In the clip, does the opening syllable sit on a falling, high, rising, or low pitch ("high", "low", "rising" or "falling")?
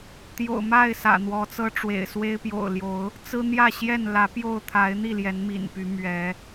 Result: low